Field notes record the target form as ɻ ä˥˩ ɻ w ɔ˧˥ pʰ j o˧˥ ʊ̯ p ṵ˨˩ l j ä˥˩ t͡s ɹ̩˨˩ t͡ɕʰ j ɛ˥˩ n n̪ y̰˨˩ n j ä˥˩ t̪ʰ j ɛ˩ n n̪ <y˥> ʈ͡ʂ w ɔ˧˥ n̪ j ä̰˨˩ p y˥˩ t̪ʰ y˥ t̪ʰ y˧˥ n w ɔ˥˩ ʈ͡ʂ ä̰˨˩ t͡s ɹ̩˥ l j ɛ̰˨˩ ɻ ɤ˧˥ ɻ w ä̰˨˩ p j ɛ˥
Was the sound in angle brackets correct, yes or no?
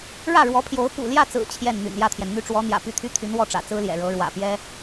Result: yes